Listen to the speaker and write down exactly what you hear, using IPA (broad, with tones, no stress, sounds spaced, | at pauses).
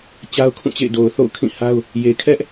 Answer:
t͡ɕ a˦ ʊ̯ kʰ ũ˦˨ t͡ɕ ḛ˦˨ ɪ̯ d o˨ ʊ̯ θ o̰˦˨ ʊ̯ kʰ ĩ˦˨ h a˦ ʊ̯ | j e˨ kʰ ɛ˦ ʔ